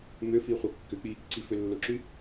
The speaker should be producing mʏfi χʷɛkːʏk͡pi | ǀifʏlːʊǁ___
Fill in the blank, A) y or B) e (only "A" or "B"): A